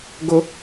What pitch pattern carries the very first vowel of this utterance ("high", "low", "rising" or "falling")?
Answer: high